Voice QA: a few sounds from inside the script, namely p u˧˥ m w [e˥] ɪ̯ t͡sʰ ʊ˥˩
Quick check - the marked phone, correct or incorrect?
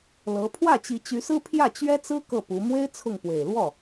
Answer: correct